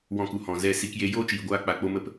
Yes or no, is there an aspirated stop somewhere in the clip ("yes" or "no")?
no